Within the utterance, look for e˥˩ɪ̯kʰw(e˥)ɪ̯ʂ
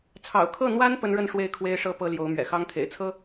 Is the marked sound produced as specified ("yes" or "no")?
yes